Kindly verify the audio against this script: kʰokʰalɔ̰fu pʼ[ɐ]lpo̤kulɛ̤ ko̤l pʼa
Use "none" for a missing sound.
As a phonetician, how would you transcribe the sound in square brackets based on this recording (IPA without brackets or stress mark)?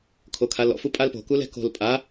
a